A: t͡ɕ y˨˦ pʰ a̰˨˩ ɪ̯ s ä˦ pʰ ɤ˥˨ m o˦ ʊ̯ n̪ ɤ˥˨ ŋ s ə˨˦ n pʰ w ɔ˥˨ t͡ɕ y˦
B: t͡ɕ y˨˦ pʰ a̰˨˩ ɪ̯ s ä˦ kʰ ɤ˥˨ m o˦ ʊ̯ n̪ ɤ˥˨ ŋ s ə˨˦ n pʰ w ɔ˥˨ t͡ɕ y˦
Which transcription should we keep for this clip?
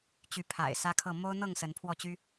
B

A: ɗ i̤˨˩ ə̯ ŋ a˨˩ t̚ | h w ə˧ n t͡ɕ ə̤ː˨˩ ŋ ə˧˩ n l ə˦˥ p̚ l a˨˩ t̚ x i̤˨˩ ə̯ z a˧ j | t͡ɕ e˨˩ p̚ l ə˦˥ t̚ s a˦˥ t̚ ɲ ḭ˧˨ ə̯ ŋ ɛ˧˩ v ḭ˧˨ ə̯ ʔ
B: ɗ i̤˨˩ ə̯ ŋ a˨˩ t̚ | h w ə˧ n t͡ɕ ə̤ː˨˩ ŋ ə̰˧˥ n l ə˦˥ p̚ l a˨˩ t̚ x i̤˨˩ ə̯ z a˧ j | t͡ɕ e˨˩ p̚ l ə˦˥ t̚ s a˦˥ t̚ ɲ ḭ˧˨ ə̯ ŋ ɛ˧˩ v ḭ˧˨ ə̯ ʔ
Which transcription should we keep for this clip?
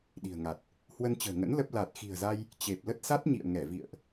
B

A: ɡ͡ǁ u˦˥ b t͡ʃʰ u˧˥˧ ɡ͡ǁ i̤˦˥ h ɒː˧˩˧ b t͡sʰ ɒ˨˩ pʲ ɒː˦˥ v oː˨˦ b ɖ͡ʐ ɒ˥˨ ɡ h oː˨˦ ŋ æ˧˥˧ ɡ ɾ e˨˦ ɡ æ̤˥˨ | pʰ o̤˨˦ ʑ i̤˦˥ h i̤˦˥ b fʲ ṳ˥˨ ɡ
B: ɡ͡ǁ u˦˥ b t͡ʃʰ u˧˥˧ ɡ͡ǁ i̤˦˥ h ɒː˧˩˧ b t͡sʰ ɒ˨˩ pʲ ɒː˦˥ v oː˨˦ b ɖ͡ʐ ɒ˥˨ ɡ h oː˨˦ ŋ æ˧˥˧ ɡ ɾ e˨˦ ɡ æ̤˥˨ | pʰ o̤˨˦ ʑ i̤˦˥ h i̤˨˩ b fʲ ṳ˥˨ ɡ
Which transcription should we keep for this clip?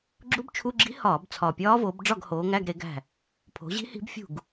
A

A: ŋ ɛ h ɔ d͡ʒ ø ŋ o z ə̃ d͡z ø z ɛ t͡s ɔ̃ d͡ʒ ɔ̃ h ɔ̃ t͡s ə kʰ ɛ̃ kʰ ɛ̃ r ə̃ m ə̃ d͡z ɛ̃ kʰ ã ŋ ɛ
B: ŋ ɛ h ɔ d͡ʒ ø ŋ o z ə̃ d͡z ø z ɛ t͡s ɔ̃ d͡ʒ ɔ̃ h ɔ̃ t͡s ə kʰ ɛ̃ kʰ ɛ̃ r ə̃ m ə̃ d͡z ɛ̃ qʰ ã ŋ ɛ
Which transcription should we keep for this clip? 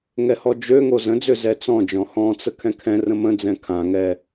A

